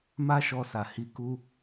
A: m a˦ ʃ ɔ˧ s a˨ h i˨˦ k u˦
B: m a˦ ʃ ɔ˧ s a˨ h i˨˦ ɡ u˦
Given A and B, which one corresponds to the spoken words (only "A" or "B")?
A